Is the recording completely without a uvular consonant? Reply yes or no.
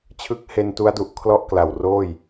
yes